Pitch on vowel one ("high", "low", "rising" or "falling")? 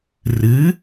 rising